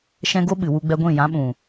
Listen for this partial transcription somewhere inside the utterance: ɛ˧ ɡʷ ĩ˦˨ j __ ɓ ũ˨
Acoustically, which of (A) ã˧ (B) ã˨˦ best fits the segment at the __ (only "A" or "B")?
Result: B